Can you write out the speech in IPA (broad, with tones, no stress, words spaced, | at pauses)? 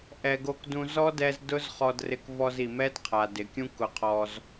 ʔɛ˨ɡo˧kdũ˧ zɔ˦dɛ˧z dʊ˦z χɔ˧drɪ˧kvɔ˧z i˨mɛ˦dqʰa˨ dɪ˨kʲũ˦ kʊ˧qʰɔ˧z